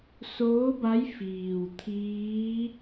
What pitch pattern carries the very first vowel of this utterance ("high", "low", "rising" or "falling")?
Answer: rising